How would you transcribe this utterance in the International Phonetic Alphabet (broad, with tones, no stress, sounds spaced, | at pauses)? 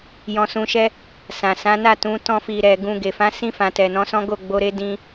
j ɔ̃˧ s ũ˧ ʃ ɛ˧ | s ã˨ s ã˨˦ n a˦˨ t ũ˨˦ t ɔ̃˧ f i˨ ɾ ɛ˨ ɡ ũ˨ ɡ e˨ f ã˨˦ s ĩ˧ f ã˨ t ɛ˨ n ɔ̃˨˦ s ɔ̃˦ ɡ o˦˨ ɡ͡b o˧ ɾ e˦ d ĩ˧